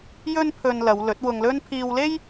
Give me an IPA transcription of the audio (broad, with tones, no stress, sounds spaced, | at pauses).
j ɵ˥ n pʰ ɵ˧ n l ɐ˨˧ w l ɵ˨˥ t̚ w ʊ˧ ŋ l ɵ˥ n pʰ iː˧ w l e˥ j